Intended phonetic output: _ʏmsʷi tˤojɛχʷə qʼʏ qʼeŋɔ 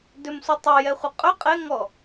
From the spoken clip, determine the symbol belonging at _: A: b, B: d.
B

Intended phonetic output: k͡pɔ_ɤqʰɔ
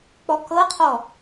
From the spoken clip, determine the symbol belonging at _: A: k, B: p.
A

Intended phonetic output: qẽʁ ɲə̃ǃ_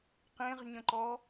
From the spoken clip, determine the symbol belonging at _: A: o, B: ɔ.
B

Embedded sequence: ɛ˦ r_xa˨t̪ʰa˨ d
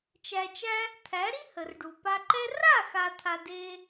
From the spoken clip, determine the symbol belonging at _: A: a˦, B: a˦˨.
B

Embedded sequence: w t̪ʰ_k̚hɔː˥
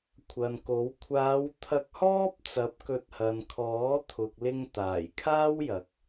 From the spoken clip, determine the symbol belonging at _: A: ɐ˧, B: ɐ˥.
A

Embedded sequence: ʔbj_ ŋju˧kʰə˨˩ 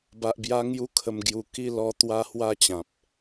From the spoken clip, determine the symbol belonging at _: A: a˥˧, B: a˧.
B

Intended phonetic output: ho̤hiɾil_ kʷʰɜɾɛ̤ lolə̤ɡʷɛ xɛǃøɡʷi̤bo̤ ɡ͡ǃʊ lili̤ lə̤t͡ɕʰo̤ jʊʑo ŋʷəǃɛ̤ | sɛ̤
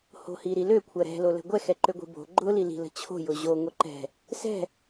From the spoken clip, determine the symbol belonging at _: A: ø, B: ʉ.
A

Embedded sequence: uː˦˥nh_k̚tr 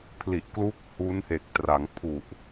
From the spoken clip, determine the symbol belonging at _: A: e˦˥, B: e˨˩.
B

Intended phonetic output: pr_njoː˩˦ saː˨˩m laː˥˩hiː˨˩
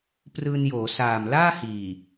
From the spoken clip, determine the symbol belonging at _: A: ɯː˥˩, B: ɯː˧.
B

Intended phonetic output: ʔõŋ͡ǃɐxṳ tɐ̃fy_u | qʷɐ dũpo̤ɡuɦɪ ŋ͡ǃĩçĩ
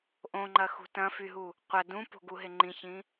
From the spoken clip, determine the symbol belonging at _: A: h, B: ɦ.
B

